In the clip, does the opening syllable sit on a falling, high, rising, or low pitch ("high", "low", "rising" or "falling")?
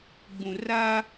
low